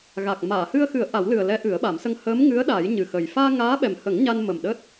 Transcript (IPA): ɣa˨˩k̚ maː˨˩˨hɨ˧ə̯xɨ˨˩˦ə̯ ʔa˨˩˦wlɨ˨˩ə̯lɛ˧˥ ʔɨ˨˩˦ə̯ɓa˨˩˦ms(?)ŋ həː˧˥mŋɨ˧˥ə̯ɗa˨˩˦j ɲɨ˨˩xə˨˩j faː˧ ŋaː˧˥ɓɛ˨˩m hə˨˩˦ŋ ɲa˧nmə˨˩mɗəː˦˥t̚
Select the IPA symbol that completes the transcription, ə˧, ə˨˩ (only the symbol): ə˧